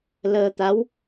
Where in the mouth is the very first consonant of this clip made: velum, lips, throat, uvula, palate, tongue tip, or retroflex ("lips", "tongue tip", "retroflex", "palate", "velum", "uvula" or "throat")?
tongue tip